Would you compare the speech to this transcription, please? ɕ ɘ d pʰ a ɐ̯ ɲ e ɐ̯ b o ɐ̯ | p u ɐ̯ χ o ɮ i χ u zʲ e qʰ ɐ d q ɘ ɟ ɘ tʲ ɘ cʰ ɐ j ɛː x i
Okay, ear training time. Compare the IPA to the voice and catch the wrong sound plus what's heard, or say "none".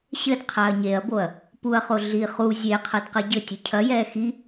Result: pʰ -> qʰ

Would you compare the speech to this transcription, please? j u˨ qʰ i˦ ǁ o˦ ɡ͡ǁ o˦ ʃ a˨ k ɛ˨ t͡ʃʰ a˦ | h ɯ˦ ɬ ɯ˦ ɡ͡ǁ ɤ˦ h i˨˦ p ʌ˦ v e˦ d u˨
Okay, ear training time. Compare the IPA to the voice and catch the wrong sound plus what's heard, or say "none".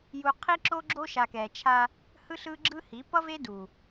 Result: ɤ˦ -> ɯ˦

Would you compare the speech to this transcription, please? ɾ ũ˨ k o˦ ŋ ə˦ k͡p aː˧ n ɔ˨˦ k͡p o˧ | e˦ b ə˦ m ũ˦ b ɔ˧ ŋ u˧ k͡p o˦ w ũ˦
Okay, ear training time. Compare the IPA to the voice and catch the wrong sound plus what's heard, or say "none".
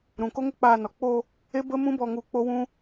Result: none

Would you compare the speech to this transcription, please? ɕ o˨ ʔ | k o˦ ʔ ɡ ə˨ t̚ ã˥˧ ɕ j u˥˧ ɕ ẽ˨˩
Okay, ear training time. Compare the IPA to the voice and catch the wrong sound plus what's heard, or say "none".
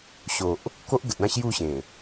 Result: none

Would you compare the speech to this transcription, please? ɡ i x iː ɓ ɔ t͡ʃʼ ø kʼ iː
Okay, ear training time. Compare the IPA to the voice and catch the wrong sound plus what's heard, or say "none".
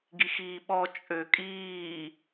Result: none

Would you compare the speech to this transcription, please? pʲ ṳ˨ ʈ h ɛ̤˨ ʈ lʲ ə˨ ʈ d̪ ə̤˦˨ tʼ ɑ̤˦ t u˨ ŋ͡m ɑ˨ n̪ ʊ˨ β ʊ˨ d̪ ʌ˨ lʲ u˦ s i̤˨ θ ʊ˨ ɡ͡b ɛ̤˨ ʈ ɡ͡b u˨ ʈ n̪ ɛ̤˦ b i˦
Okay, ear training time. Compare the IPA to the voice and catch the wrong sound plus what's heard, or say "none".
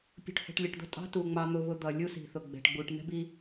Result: none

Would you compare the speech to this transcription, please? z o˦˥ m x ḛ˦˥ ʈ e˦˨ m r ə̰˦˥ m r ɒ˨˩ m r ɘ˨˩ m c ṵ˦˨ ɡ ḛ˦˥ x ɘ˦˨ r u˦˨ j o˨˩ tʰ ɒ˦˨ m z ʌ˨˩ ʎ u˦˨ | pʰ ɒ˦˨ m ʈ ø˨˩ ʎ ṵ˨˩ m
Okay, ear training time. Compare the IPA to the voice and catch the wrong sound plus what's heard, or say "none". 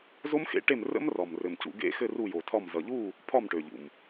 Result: none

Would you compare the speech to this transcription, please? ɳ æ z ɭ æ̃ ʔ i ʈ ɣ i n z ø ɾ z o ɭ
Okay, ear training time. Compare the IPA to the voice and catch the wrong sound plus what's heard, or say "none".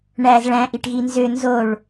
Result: ɾ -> n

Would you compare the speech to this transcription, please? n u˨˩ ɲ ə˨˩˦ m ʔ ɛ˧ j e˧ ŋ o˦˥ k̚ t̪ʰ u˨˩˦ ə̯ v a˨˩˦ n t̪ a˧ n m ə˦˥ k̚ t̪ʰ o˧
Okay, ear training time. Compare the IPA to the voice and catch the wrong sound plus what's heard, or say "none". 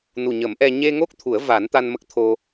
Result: j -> ɲ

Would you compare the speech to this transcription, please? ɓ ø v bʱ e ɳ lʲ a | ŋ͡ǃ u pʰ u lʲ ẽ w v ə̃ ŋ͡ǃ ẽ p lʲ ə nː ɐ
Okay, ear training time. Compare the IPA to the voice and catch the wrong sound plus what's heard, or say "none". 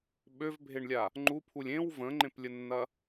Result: none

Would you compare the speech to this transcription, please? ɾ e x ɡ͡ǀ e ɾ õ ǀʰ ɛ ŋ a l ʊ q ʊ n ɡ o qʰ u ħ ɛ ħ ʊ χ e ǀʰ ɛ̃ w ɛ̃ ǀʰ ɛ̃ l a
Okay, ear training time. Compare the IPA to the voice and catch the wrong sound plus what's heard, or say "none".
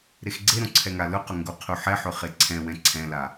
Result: n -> ŋ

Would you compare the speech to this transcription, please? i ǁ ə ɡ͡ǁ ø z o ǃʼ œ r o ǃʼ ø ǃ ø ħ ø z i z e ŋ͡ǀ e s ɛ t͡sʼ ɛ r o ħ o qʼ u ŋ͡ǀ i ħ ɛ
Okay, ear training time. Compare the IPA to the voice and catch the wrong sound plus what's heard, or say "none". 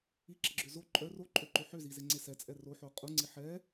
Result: none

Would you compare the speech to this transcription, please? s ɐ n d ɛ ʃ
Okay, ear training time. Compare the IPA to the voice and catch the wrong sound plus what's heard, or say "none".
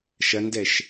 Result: s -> ʃ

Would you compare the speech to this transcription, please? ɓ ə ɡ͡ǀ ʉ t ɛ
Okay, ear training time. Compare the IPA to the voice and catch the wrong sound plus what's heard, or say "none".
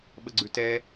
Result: none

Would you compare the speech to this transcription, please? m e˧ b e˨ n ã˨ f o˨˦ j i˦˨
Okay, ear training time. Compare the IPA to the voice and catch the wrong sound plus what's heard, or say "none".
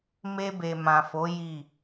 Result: n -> m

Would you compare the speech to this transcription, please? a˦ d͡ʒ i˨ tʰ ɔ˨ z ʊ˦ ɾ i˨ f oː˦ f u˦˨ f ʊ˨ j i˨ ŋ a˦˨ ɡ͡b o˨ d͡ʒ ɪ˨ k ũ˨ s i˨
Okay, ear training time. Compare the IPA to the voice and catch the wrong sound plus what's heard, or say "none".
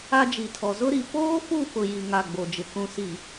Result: none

